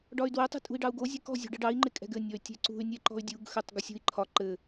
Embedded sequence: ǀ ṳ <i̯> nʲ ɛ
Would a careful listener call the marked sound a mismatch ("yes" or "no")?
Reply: yes